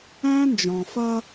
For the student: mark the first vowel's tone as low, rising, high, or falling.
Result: high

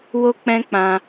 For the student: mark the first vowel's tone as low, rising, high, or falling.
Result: high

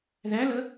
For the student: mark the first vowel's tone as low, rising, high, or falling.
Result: rising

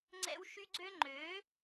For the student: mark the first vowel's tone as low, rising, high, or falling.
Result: high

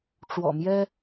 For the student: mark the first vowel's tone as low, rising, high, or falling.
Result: low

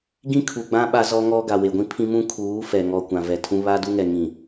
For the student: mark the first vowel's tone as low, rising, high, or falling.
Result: high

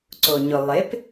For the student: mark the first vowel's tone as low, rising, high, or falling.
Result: low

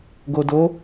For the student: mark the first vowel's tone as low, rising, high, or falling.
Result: low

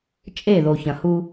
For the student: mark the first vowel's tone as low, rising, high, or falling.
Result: falling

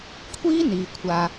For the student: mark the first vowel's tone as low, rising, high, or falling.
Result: high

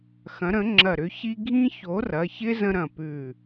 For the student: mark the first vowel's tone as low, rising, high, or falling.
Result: rising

